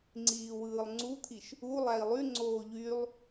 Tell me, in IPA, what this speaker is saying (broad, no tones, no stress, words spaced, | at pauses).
ŋ͡ǀiːwɯːlˠŋ͡ǀut̪ʰiʃ | u lˠæi̯lˠyŋ͡ǀoː ʎylˠ